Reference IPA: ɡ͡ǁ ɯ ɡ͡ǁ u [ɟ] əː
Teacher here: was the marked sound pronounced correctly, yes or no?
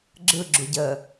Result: yes